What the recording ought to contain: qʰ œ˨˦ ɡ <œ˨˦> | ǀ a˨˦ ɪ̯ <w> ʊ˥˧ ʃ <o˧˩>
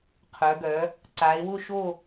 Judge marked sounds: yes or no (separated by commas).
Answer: yes, yes, no